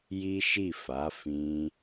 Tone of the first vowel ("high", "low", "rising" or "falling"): high